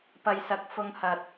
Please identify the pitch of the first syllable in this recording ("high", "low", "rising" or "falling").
low